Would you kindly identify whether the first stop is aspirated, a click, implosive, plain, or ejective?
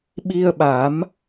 implosive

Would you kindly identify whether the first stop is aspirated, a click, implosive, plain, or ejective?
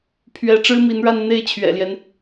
aspirated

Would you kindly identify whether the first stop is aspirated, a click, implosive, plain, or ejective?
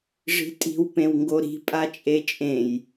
ejective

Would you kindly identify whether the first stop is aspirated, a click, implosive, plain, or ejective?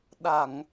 implosive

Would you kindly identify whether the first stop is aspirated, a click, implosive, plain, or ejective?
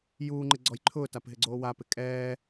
click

